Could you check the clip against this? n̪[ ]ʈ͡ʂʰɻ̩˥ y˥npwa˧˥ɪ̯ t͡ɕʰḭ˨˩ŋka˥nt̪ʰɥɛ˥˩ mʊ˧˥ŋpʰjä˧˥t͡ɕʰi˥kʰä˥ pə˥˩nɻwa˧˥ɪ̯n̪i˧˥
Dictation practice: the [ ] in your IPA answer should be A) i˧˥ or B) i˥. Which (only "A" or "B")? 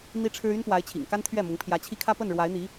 B